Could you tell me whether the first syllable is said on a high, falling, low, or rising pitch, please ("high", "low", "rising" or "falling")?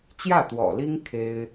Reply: falling